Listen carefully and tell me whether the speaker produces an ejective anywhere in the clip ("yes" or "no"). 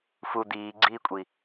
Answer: yes